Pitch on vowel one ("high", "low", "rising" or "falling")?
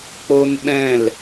high